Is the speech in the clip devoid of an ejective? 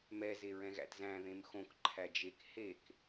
yes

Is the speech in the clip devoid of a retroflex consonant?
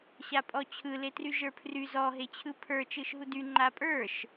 yes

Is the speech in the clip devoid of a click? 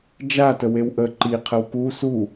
no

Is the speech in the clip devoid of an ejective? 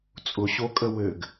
no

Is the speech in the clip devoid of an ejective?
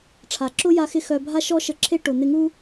yes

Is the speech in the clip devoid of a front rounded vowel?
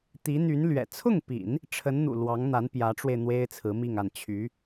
no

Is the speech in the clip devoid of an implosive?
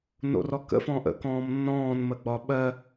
no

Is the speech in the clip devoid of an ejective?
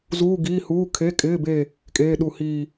no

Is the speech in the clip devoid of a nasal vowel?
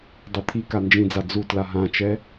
no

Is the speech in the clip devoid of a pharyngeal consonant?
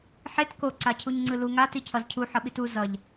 no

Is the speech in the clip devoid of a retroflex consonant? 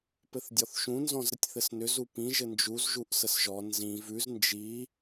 yes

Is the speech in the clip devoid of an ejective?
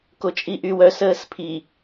no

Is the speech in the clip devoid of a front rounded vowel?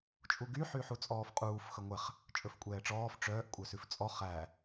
no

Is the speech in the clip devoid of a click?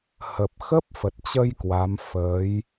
yes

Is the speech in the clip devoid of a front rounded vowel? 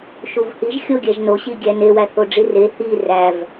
yes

